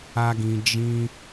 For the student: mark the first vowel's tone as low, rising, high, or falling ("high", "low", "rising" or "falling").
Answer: high